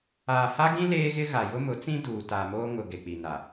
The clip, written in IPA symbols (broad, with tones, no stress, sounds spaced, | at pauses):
aː˨ h a˦ ɡ ĩ˦ l eː˦ ɣ ɪ˦ ɣ a˨ j ʊ˦ m ʊ˨˦ t͡s ĩ˦ d uː˨ t a˨ m oː˦ ŋ ʊ˨ ɡ e˨ k͡p i˨ n a˨